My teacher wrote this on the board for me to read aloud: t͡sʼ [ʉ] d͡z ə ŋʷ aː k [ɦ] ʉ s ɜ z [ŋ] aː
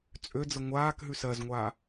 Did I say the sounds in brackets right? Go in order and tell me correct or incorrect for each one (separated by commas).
incorrect, correct, incorrect